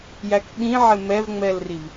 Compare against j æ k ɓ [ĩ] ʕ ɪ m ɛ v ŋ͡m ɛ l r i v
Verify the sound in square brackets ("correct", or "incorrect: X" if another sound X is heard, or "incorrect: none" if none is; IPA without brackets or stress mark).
correct